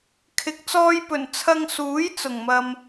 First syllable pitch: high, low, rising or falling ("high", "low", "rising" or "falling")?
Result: rising